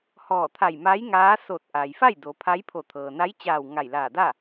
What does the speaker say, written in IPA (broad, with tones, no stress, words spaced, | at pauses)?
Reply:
hɔː˧˩t̪ʰa˧˩jmaː˧˥j ŋaː˧˥ so˧˩t̚ʔa˩jfa˥˨j do˩˧pʰa˧˥j pʰo˧˩t̪ʰɤː˩ na˧˥jt͡ɕaː˧˩w ŋa˧˩jlaː˧˩ da˥˨